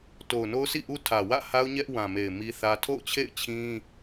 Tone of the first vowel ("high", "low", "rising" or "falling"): low